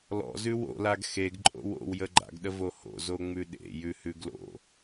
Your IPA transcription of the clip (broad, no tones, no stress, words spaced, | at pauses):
lɔ̰zʉ wo̰laɡ xeɡǃʼo̰w o̰wjə ɡ͡ǃa̰ɡɗəvo ho̰ zoŋ͡mʉɗḛ jʉhʉɡlo̰